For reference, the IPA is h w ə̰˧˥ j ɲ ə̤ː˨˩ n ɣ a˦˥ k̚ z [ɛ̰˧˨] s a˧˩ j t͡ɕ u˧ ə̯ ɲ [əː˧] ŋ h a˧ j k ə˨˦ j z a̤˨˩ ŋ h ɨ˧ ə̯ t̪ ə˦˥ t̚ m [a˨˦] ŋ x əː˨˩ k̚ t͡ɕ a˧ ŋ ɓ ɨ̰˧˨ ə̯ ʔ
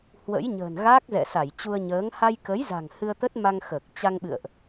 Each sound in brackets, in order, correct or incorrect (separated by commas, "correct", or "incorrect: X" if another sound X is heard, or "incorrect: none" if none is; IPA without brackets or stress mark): correct, incorrect: əː˨˦, incorrect: a˧